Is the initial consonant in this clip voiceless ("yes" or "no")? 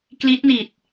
yes